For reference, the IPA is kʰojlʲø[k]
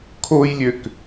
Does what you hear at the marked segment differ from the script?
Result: no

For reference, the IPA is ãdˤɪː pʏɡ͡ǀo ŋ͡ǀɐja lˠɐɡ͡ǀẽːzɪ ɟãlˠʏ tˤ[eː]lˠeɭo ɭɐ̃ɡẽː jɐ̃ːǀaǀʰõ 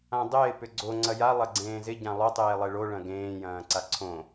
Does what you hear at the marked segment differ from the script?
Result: no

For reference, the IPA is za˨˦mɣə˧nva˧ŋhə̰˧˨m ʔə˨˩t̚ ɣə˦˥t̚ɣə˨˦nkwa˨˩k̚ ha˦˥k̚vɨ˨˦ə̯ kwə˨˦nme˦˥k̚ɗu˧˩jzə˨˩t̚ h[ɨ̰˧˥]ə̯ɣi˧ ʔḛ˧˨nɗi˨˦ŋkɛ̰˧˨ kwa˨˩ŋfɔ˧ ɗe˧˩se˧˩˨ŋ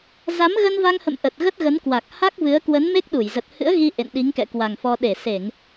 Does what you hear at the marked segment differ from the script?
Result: no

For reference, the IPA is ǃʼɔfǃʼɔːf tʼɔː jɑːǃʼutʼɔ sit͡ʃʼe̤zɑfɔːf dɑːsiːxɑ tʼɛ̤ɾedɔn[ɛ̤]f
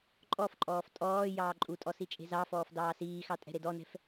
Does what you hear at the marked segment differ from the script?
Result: no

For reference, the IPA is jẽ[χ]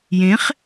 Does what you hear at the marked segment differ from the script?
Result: no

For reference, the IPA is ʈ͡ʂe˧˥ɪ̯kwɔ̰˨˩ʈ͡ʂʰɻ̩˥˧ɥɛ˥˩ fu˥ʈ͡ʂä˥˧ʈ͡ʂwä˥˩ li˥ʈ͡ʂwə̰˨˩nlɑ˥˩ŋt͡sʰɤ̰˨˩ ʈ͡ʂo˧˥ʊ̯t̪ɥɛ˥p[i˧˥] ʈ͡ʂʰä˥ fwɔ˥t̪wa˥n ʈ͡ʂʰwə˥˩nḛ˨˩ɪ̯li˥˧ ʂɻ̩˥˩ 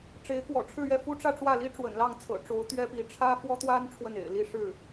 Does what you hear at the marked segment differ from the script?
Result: no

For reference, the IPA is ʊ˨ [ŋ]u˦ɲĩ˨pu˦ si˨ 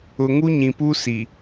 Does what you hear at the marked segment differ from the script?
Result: no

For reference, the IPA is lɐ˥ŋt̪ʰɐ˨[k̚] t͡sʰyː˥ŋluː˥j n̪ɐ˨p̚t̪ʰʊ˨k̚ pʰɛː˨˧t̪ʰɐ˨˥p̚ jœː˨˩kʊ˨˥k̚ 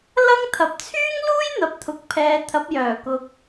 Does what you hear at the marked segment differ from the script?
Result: yes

